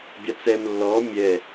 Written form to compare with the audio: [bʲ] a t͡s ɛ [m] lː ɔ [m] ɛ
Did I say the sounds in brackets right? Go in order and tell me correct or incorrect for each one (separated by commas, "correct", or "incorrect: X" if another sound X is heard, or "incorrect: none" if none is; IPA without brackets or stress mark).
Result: correct, correct, incorrect: mʲ